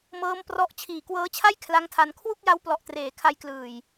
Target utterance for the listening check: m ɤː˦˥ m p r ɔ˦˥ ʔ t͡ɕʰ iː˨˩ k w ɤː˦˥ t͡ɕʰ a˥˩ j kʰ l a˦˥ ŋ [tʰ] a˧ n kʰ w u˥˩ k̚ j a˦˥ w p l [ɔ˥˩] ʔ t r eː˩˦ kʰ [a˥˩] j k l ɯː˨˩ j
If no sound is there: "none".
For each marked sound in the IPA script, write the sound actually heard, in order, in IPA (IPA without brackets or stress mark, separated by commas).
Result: tʰ, ɔ˨˩, a˧